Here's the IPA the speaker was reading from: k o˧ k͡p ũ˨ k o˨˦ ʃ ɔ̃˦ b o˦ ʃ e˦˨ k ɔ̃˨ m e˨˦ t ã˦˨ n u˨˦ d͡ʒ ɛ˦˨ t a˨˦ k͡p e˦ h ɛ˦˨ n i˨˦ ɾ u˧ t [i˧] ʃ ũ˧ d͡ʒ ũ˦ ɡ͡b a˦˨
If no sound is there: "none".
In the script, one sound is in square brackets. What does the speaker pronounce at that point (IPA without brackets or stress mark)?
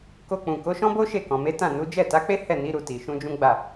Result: i˨